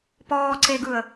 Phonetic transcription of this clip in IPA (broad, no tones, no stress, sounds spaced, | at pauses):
p ɔː ǀ e ɡ ɯ ə̯